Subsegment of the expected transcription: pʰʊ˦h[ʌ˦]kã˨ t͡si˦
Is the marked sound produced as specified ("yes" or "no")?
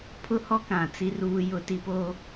no